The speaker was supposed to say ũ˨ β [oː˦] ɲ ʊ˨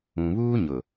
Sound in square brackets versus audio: incorrect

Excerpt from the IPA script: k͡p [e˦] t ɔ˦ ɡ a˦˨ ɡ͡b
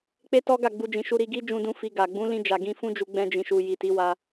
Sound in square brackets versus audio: correct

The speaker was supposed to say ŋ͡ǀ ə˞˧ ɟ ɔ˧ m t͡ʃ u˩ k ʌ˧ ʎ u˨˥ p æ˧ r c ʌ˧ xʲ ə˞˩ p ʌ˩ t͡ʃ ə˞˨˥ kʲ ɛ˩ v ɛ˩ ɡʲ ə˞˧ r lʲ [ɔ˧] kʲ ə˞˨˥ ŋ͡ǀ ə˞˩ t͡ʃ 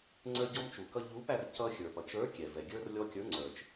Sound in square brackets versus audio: correct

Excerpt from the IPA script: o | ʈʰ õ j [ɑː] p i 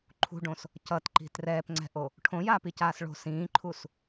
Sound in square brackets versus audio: incorrect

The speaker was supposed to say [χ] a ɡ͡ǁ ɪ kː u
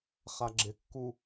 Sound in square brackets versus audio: correct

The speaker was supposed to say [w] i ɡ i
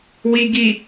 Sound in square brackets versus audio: correct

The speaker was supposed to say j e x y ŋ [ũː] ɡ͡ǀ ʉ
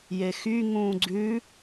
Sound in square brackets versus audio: correct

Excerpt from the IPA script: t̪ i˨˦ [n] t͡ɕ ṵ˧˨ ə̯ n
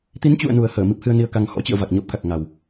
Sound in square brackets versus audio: correct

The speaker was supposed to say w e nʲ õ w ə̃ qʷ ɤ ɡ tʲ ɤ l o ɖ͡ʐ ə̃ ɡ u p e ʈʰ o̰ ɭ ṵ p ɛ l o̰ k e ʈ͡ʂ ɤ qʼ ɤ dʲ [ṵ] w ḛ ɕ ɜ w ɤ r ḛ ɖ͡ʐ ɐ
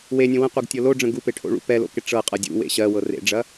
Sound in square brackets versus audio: correct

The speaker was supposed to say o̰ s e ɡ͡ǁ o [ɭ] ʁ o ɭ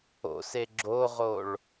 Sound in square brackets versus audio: incorrect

